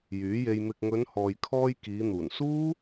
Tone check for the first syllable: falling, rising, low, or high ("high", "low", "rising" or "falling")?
rising